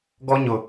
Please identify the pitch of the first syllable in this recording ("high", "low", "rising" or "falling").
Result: high